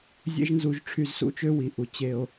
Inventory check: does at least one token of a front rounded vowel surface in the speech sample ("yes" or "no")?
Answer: yes